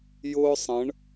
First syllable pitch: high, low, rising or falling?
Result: high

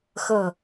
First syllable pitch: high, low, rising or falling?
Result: low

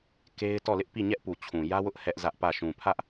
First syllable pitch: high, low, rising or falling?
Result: high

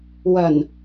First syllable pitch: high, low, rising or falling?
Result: low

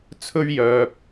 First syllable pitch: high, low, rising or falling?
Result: high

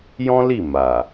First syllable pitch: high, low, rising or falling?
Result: high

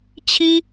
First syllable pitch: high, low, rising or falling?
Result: high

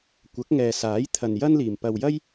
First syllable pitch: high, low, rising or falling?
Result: rising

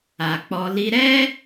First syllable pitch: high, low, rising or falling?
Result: low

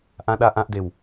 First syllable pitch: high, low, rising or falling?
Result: low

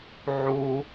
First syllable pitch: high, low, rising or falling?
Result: high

